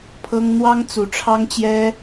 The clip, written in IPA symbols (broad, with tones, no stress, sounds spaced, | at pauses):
pʰ ɤ˥ ŋ n̪ w ɑ˥ ŋ t͡s u˨˩ ʈ͡ʂʰ ɑ˥ ŋ t͡ɕ j ɛ˥